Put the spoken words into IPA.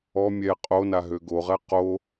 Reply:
ɔ mʲ ɛ qʼ o n a ɦ ø ɡ o ʁ ɛ q o

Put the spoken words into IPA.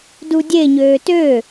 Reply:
d u dʲ e ɲ øː t ø

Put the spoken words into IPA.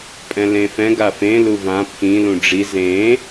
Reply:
pʼ ɛ̃ l ẽ f ɛ̃ ɡ a f ẽ l u v ã pʰ ĩ l ũ ɖ͡ʐ i z ẽ

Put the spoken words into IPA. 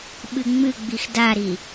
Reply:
ɓ ɨ ŋ͡m ɨ ɡ͡b i x d a ɾ i

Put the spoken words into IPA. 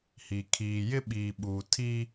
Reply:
h i˨ kʰ iː˨ j ɪ˦ ɓ iː˨ ɓ uː˨ tʰ iː˦

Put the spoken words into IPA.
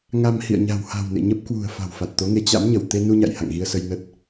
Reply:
ŋ a˧ m h ḭ˧˨ ə̯ ɲ a̤˨˩ w h a̤˨˩ w n ḛ˧˨ ɲ ə˦˥ p̚ k w ṳ˨˩ ə̯ f a̤˨˩ w f a˨˩ t̚ t̪ o˨˦ ŋ e˨˦ t͡ɕ a̰˧˥ m ɲ ə˧˩ w t̪ e˧ n u˧ ɲ a̰˧˨ j h a̰˧˨ ŋ ɣ i˧ ə̯ s ə˧ j n ə˦˥ t̚

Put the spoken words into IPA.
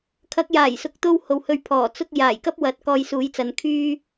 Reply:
kʰ ɐ˨˥ k̚ j aː˨˩ j s ʊ˨ k̚ t̪ o˥ w h o˨ w h ɵ˧ ɥ pʰ ɔː˨˩ t͡s ʊ˥ k̚ j aː˨˩ j k ɐ˥ p̚ w ɐ˨˥ t̚ k ɔː˧ j s uː˨˥ j t͡s ɐ˨˧ n kʰ yː˥

